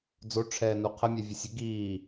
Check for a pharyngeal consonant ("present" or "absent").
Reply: absent